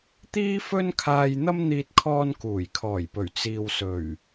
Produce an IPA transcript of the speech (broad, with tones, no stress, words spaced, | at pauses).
t̪iː˥fɵ˥nkʰaː˧jn̪ɐ˥m n̪iː˧t̚kʰɔː˧nkuː˨˩j kʰɔː˨˩jpɵ˨˩ɥ t͡siː˨wsɵ˨˩ɥ